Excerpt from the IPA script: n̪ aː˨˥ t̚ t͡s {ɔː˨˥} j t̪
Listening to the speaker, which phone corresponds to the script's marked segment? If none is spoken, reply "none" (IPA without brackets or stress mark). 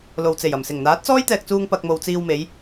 ɔː˥